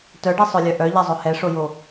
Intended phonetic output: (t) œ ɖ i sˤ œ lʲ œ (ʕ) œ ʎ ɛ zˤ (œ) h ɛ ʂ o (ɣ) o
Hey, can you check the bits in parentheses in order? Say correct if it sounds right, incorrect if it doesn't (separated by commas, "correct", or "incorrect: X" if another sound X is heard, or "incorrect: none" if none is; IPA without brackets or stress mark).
correct, incorrect: ʔ, correct, incorrect: j